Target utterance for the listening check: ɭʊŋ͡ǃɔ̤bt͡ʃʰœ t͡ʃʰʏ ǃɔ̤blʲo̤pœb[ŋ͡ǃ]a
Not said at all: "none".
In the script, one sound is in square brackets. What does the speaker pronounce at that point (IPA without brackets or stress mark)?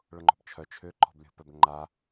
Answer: ŋ͡ǃ